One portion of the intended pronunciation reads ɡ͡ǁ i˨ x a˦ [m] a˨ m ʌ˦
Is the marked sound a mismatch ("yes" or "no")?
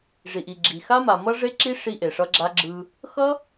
no